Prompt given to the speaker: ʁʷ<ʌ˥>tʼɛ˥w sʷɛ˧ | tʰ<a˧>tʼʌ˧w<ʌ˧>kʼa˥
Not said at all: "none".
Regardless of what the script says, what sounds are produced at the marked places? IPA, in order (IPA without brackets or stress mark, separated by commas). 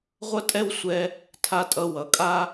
ʌ˥, a˧, ʌ˩